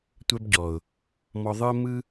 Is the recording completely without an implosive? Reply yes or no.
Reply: yes